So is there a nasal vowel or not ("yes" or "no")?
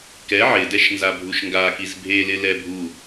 no